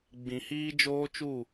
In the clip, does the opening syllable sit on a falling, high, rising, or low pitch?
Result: low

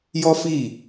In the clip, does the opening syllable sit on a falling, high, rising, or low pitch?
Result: high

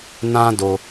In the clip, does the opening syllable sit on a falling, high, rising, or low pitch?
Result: high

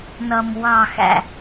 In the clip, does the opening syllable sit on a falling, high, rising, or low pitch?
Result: low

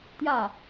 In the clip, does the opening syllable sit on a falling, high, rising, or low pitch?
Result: falling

